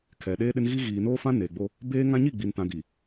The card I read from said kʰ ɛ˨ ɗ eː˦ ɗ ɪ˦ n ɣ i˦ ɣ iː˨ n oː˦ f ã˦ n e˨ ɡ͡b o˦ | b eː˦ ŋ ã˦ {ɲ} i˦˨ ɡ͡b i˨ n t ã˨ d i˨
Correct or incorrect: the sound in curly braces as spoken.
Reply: correct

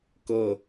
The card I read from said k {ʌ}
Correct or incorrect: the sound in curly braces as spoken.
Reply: correct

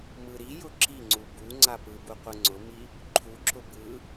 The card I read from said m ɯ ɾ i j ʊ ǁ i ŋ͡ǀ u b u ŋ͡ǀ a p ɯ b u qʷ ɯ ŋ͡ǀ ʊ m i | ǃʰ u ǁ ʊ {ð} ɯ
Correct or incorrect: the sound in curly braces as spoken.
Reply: incorrect: b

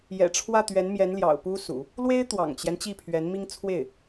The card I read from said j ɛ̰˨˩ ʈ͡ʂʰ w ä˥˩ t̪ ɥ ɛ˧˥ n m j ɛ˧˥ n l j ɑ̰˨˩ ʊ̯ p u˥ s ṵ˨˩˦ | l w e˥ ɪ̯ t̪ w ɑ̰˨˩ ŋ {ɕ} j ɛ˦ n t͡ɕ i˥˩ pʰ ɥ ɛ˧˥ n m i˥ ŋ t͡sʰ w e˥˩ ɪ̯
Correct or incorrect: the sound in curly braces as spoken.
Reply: incorrect: t͡ɕ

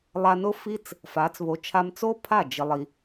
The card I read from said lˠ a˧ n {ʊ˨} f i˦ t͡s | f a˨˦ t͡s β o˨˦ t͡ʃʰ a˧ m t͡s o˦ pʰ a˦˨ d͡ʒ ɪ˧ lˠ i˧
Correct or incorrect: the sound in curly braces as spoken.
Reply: incorrect: ʊ˦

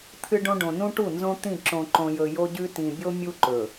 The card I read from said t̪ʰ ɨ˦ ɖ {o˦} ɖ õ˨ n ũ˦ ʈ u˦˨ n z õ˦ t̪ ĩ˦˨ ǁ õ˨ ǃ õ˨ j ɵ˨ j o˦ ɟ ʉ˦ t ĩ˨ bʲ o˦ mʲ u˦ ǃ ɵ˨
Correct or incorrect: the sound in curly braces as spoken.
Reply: incorrect: õ˦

